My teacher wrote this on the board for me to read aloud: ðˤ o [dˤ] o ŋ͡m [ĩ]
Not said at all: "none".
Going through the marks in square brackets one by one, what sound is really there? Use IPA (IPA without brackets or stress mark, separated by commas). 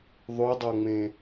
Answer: dˤ, ẽ